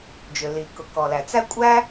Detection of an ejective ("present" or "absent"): present